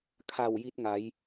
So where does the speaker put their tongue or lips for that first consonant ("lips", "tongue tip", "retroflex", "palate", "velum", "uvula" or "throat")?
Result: velum